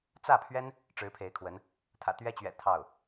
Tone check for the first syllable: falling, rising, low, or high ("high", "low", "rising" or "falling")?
falling